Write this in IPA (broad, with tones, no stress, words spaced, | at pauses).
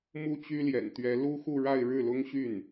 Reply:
mu˥˩t͡ɕy˥ljɛ̰˨˩nt̪ɥɛ˧˥ lu˥xu˥˧ɻa˥˧ɪ̯ ɻɻ̩˥˩lʊ˥ŋɕy˥˩n